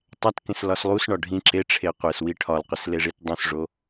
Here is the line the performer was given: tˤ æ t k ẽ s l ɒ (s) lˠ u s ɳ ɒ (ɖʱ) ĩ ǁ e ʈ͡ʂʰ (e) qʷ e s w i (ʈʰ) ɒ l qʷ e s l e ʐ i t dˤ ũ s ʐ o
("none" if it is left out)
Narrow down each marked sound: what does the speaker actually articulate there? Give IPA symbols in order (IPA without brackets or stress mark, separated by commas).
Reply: s, ɖʱ, e, ʈʰ